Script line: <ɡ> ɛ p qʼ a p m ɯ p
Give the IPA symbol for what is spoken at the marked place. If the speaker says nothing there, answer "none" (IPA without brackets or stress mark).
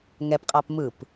ŋ